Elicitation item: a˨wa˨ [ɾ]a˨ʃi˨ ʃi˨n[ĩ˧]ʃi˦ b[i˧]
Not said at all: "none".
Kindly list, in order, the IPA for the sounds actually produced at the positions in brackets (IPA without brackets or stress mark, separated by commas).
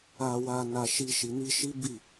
n, i˧, i˦˨